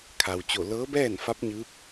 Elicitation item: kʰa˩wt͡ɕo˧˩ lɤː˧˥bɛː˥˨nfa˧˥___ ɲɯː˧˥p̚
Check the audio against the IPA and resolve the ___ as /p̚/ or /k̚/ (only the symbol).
p̚